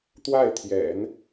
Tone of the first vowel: falling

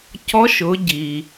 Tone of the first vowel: rising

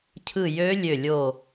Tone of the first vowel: falling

